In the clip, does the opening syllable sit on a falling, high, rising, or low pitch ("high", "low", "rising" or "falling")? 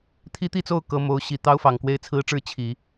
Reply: high